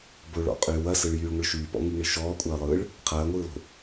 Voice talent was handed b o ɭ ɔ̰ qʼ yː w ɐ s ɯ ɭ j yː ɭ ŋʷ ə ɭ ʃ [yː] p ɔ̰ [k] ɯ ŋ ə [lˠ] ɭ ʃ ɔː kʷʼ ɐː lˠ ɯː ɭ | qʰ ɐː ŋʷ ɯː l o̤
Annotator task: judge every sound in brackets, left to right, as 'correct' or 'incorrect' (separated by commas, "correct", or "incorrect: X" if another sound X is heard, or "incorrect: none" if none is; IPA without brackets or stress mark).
correct, incorrect: ŋ, incorrect: none